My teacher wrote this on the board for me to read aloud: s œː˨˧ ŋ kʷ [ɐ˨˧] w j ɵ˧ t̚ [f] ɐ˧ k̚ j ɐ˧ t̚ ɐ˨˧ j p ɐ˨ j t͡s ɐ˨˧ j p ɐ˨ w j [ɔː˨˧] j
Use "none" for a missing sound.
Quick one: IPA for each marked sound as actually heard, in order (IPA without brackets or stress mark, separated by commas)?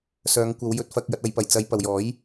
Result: ɐ˨˧, f, ɔː˨˥